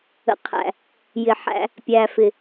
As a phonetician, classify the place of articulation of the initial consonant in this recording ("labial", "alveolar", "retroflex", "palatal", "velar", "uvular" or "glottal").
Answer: uvular